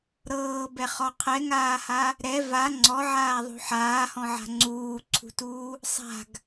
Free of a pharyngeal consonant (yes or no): no